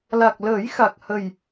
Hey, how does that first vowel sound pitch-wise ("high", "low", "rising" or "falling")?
low